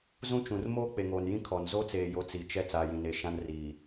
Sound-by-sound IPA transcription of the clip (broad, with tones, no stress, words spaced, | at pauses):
zũ˦t͡ʃũ˨r moː˦k͡pe˨ŋoː˨njĩ˦ kʰɔ˨n zo˦t͡seː˨jo˨˦ t͡si˨t͡ʃɛ˦ t͡saː˨jĩ˨ne˨ ʃã˦nriː˨